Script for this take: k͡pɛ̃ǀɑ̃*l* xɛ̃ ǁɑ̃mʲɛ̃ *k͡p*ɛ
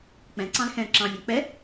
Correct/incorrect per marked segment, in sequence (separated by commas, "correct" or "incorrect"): correct, correct